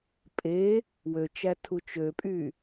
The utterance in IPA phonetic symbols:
pʼ e | w ø t͡ʃ æ tʰ u t͡ʃ ø pʼ y

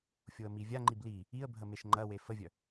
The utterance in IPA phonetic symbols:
fʲ o ə̯ m i vʲ a ŋ͡ǃ i b l i | i ə̯ bʱ ə m e ʃ ŋ͡ǃ ɐ w e f ə vʲ œ

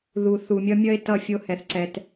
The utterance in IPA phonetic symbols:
ð u˨ θ u˨ mʲ ʌ˦ mʲ ʌ˦ e̯ t ʌ˦˨ fʲ o˦ h ɛ˨ θ ǀ ɛ˨ t

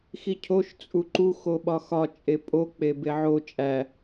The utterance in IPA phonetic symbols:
x i cʰ o ʃ t͡sʼ u ǃ u x o ɓ ɒ x ɒ t͡ʃʼ e pʼ o k͡p e b e ʕ o t͡ʃʼ æ

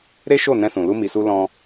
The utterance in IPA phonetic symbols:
ɾ e˦ ʃ o˦˨ n ɛ̃˧ s ũ˨ l u˧ m i˨ s u˧ l ɔ̃˧

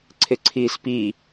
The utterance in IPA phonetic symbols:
ǀʰ ɪ ǀʰ iː s p i

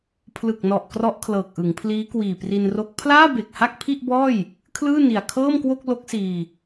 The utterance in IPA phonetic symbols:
pʰ l ɯ˨˩ k̚ n ɔ˨˩ ʔ k r ɔ˦˥ ʔ kʰ l ɤː˨˩ k̚ ʔ ɯ˩˦ ŋ pʰ l iː˦˥ k w iː˨˩ p r i˧ n r o˦˥ k̚ pʰ l aː˥˩ b e˨˩ k̚ h a˥˩ k̚ pʰ i˥˩ ʔ b ɔː˥˩ j | kʰ l ɯː˥˩ n i˨˩ a̯ kʰ ɤː˥˩ m k w o˥˩ k̚ l o˦˥ k̚ s iː˧

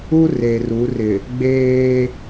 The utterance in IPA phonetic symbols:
u˦ r e˨ r u˨˦ r ɪ˨ | ɡ͡b eː˦

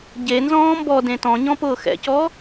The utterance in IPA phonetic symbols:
ɟ e n z ɔ̃ː m b ɔ d ẽ t ɔ̃ ɲ ɔ̃ p ʊː x ɛ̰ c ɔ

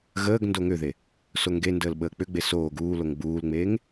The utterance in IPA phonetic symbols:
ɣ əː ɡ n d o ŋ ʏ ð e | s o ŋ ɡ e n d əː l ɓ əː k͡p ʏ ɡ͡b e s oː ɡ uː l o ŋ ɡ͡b uː l ŋ͡m eː ŋ

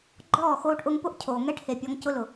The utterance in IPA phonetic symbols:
ɡ͡ǃ ɔː˦˨ x oː˧ ʈ ʔ ʊ˧ ŋ p ʊ˦ ʔ cʰ oː˨ ŋ ɛ˦ ʈ h e˨ pʲ ɔ˧ ŋ c ʊ˧ l ʊ˨

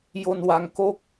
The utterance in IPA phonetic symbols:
j o˧ n w a˧ ŋ k o˥˩ k̚

